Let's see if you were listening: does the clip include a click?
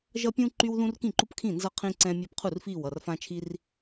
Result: yes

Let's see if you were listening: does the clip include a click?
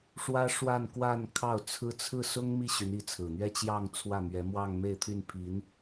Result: no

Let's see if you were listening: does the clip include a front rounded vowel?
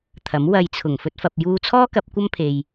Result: no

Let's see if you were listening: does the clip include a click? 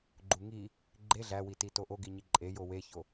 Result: yes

